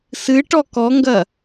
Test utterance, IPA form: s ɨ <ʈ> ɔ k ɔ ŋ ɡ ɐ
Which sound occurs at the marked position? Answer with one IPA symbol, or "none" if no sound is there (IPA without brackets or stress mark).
ʈ